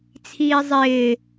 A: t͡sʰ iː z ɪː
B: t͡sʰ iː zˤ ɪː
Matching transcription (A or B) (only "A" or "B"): B